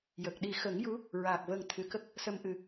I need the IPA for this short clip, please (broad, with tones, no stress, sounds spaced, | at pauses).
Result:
j ə˨˩ k̚ ɗ i˨˩ x ə˨˩˦ ŋ j u˧˥ | ɹ aː˨˩ k̚ v ə˨˩ ŋ t̪ʰ ɨ˨˩˨ k ə˦˥ k̚ | s ə˧ m ʔ ɨ˨˩